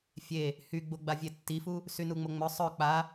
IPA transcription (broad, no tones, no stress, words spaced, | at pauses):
fʲe | hyɡ͡boɡ͡ba vʲetːifu | synuŋ͡moŋ͡mœ sˤœ k͡pa